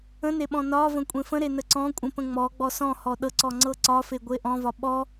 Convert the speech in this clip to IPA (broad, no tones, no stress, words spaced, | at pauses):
ə̃neɓɔ̃ nɒvə̃ kʷʼẽfə̃ɾe nəǀɔ̃ kʷʼə̃ pə̃ŋ͡mɔ ɡ͡bɔsɔ̃hɔ ɗɤǀɔ ŋ͡ǀɤǀɒfe ɡʷeʔɔ̃vɒ ɓɔ